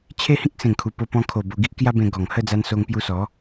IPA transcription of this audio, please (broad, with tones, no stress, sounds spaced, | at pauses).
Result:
t͡ɕʰ e˦ h ĩ˦ k̚ s ẽ˨˩ ŋ kʰ u˨˩ p o˧ p ɔ̃˧ kʰ o˨˩ b o˧ ɡ i˦ ʔ k j a˦ b ẽ˧ ɡ ɔ˨˩ ŋ h ə˥˧ d͡z a˧ n s o˧ ŋ p j u˧ s ɔ˨˦